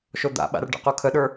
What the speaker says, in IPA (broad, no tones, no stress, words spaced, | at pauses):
ʃod̪a̰ ɓa̰rɖə̰qu kʰəɗə˞